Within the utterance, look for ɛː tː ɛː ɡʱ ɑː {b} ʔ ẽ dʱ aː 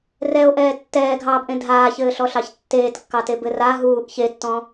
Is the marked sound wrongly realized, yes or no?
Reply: no